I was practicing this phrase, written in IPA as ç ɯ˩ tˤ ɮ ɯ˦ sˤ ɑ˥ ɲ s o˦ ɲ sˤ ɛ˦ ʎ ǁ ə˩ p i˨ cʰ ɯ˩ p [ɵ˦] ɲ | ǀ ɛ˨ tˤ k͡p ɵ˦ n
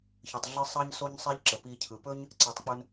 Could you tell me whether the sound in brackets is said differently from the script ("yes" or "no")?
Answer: no